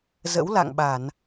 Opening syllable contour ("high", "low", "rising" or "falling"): rising